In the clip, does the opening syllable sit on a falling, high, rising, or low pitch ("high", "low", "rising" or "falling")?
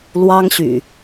high